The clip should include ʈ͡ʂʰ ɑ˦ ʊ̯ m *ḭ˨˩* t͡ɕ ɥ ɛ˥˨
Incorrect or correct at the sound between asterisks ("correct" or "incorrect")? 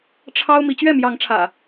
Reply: incorrect